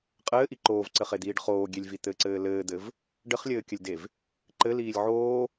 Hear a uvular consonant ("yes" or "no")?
yes